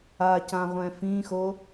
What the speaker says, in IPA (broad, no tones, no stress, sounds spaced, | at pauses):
a c ã ʁʷ ɛ̃ f ĩ x o